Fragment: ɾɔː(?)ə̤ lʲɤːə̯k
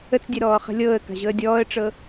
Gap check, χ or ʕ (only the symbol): χ